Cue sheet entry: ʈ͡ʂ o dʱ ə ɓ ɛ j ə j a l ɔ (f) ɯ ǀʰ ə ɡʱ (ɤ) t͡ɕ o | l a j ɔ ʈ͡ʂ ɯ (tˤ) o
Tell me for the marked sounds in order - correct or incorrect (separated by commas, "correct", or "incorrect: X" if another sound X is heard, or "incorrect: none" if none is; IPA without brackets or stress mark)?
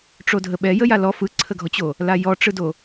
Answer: correct, incorrect: ɔ, incorrect: d